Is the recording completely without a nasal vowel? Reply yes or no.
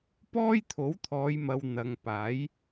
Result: yes